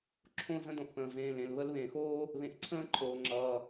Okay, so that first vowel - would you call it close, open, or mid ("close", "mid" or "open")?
mid